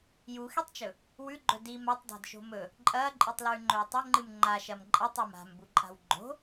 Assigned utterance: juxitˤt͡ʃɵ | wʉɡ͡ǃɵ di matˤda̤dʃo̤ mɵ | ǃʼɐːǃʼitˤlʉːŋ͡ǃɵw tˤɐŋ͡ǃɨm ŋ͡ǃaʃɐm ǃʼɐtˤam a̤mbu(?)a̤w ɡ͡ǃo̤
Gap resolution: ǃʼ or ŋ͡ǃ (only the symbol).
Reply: ǃʼ